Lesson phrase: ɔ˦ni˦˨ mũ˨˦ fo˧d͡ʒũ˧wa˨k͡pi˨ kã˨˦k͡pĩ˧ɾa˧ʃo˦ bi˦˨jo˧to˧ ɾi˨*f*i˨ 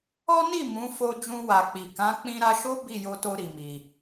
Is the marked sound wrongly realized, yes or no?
yes